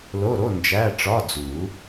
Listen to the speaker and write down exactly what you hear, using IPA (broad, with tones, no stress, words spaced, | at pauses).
lo˧˥˧ɾo˧˥˧ nd͡ʒæ˧˥˧ʈ͡ʂɒ˧˥˧d͡zu˨˩˦